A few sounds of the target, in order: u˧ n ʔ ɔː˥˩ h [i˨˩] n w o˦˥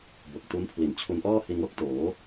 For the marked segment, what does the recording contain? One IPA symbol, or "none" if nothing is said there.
i˧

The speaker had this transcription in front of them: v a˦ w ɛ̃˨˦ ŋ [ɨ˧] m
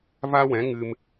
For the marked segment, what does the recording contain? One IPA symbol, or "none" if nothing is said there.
ɨ˧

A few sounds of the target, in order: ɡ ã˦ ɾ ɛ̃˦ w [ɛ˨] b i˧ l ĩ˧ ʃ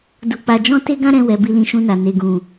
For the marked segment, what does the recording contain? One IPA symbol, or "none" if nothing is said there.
ɛ˧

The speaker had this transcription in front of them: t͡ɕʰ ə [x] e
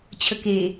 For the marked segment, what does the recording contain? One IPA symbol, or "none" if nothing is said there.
k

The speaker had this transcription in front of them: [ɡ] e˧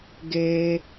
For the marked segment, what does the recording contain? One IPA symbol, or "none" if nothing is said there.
ɡ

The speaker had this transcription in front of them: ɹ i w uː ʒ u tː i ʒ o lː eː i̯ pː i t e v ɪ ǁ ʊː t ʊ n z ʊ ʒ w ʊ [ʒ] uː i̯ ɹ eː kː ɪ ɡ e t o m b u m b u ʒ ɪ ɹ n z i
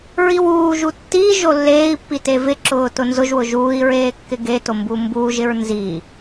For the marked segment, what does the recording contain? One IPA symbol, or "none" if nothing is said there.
ʒ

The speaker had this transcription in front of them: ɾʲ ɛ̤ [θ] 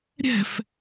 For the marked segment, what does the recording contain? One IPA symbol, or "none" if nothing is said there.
f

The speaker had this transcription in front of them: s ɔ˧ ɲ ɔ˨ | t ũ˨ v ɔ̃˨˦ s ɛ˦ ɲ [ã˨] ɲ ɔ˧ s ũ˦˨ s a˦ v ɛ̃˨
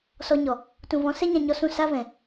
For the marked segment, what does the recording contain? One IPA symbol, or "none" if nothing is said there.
ã˧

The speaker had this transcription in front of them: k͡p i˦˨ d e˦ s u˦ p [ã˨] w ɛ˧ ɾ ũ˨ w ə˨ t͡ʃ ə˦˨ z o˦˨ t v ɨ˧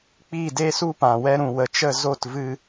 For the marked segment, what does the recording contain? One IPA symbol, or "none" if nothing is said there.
ã˨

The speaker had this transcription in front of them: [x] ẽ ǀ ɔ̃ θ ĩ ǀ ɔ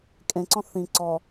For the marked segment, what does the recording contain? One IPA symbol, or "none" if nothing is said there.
kʼ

